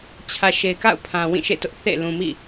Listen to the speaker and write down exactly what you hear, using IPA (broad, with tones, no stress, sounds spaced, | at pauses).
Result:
t͡ɕʰ ä˨ ʃ e˨ ɪ̯ k a̰˦˨ ʊ̯ pʰ ã˨ w ĩ˦˨ ʃ ḛ˦˨ t ʊ˦ ʔ θ ḛ˦˨ l ũ˨ m ḭ˦˨